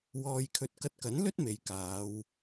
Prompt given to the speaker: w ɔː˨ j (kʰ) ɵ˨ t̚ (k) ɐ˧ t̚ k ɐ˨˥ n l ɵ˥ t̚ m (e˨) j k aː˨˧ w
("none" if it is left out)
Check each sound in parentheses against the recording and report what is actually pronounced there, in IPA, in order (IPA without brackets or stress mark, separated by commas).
kʰ, k, e˨